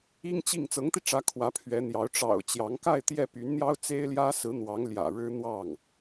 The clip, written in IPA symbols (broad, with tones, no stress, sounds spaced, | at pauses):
i˥ ŋ t͡ɕ i˥˩ ŋ t͡s ɤ˧˥ ŋ t̪ i˧ ʈ͡ʂ ä˧˥ kʰ w ä˧˥ pʰ ɥ ɛ˧˥ n̪ j ɑ˧˥ ʊ̯ ʈ͡ʂ ɑ̰˨˩ ʊ̯ t͡ɕ j ɑ˧˥ ŋ k a˥˧ ɪ̯ t̪ j ɛ˥˩ p y˧˥ n n̪ j ɑ˥ ʊ̯ t͡s e˥ ɪ̯ l j ä˥ s ɹ̩˧˥ n̪ w ɑ˧˥ ŋ l j ä̰˨˩ ɻ ɻ̩˥ n̪ w ɑ˥˩ ŋ